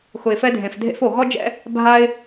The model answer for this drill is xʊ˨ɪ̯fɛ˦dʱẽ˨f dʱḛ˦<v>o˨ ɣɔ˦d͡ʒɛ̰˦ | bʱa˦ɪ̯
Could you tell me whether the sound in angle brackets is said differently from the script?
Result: yes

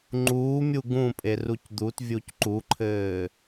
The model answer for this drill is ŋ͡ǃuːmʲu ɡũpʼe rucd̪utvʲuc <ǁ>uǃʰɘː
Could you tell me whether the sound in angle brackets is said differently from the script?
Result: yes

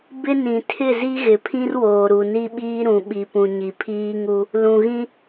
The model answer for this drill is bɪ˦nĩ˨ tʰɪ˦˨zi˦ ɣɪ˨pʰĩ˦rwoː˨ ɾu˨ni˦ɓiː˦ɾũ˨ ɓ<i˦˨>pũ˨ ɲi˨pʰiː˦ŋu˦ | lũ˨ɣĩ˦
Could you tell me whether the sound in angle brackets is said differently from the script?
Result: yes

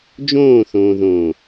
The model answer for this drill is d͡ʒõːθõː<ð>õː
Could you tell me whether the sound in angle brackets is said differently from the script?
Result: no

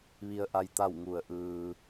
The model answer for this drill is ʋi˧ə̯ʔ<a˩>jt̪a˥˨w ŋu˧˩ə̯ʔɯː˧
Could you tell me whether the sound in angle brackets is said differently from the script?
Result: yes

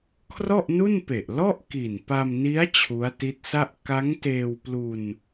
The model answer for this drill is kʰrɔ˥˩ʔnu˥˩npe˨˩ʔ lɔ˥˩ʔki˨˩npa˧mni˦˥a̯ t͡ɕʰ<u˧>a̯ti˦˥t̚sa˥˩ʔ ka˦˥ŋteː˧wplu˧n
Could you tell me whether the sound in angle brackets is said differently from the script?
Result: yes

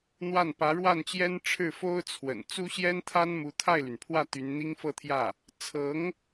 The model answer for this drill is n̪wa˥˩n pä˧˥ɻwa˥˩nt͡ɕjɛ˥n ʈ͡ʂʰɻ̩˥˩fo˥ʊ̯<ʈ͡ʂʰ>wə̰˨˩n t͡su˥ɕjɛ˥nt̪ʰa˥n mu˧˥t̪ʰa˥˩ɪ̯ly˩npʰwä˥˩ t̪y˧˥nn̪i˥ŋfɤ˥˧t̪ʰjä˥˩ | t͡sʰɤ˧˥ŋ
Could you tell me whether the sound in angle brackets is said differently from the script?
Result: yes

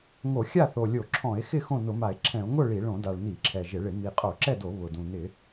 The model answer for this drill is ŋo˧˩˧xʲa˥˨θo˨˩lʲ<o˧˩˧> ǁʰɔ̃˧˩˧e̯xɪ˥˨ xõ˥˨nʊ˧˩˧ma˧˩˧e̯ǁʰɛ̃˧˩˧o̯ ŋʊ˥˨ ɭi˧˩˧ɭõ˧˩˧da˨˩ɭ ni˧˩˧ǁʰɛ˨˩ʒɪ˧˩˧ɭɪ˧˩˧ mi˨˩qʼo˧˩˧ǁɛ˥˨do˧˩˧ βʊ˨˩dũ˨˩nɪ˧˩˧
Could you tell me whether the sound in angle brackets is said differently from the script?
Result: no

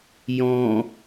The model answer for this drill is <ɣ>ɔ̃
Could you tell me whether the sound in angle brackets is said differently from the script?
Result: yes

